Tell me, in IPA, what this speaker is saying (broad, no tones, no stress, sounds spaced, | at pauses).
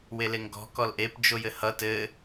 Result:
w e l e ŋ ɡ ɔ̤ k ɔ l ʔ e p d͡ʒ o j ɘ h ʌ t ɘ